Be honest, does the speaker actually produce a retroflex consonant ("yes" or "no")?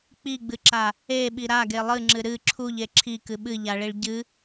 yes